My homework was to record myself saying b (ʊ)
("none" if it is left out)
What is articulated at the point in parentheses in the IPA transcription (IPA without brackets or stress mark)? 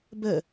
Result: ə